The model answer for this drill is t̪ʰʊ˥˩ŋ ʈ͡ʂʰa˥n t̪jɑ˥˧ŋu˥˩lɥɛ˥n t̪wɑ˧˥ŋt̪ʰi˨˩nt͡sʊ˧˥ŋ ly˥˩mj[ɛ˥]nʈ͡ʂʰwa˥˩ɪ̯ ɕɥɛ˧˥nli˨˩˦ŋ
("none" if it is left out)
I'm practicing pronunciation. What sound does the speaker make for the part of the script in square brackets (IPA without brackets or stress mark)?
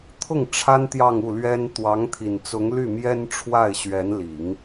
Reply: ɛ˥